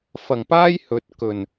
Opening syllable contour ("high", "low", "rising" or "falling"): low